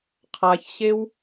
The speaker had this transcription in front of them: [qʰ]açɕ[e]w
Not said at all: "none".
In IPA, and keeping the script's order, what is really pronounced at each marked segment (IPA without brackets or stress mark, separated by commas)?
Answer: qʰ, e